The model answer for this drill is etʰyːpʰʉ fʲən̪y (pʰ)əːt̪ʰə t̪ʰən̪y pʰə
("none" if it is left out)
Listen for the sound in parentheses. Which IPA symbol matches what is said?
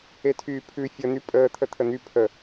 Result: pʼ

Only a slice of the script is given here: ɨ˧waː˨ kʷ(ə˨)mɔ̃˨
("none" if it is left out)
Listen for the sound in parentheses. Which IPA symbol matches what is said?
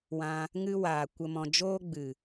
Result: ə˨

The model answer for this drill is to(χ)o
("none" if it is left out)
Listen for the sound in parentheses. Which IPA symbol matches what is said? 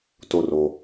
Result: r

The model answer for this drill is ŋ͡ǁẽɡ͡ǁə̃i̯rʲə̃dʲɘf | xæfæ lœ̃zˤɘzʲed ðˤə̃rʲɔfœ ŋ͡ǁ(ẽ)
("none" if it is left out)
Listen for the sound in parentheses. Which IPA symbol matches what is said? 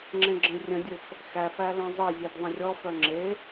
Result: e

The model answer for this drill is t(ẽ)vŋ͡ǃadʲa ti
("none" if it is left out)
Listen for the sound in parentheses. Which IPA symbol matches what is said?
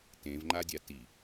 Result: ẽ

